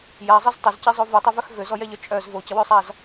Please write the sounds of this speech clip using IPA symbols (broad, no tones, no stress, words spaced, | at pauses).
jazˤiz tˤəzcizˤo vutˤøvœx vøzɔjɛʎœ t͡ʃʼœz vocəwøsˤaz